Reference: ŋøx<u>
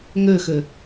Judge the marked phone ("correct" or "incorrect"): incorrect